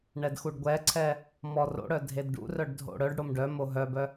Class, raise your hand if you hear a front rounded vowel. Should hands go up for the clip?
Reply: yes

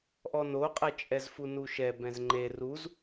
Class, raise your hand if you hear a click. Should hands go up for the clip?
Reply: yes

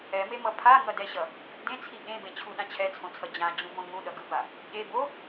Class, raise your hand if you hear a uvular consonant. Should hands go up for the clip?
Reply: no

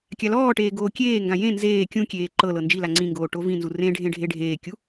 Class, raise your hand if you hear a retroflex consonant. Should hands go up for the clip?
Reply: yes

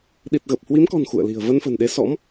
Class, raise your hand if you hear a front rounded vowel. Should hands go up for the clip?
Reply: no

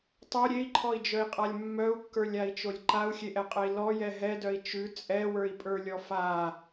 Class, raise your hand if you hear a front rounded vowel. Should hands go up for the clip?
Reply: yes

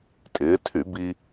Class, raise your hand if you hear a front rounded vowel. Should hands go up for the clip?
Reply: yes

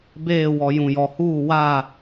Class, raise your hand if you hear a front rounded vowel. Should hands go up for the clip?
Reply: no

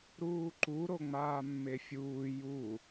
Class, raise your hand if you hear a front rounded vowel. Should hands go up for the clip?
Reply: no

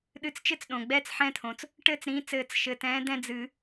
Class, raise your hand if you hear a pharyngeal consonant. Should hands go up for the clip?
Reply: yes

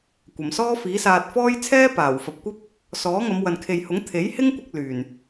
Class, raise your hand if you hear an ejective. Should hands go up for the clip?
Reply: no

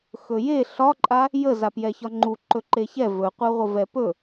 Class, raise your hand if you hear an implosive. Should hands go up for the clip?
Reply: no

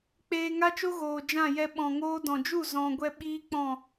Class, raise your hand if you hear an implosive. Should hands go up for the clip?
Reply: yes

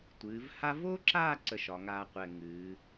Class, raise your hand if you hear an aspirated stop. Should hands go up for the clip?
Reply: no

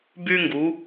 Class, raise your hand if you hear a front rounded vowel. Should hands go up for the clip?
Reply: yes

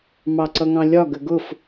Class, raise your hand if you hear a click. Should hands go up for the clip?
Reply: yes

